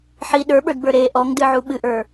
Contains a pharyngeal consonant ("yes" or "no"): yes